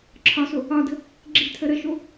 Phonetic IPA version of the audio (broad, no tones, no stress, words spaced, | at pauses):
ǁʰɒso | ɒdə̤ | ɡ͡ǁi̤tʰə ɾəʃo